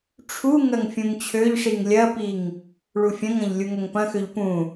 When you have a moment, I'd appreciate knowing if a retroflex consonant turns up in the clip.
yes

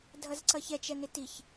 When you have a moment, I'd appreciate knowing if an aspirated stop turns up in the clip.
no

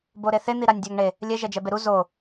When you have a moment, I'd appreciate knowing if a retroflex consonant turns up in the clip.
yes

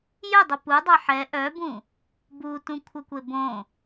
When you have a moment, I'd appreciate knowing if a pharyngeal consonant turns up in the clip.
yes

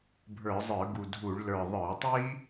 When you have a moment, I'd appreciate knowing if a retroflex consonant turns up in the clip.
yes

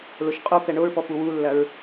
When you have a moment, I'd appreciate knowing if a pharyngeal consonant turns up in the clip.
no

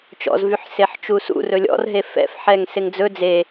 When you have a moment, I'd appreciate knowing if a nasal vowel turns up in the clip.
no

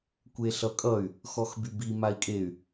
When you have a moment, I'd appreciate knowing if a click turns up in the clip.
no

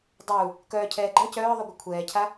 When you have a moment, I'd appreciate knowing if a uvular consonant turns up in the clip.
no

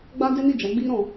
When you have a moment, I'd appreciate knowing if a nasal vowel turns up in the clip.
yes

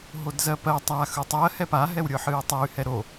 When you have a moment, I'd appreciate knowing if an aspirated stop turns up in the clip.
no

